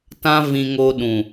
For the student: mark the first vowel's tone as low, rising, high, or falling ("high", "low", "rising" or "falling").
high